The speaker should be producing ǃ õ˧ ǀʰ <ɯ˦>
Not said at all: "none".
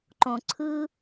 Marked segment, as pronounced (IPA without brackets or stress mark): ɯ˦